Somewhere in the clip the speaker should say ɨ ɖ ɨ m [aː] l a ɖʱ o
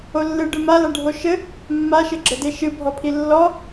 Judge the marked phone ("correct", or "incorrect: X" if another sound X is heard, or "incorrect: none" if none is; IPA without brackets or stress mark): incorrect: a